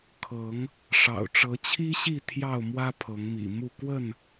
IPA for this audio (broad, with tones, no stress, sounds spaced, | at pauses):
kʰ ɤ˨˦ ŋ | ʂ ɑ̰˨˩ ʊ̯ ʈ͡ʂ ɤ˨˦ t͡ɕʰ i˦ ɕ i˥˨ t̪ʰ j ɑ˥˨ ʊ̯ m w ä˦ pʰ ɤ˨˦ ŋ m ḭ˨˩ m u˥˨ k w ə˥˨ n